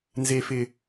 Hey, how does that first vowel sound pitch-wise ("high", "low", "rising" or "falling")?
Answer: low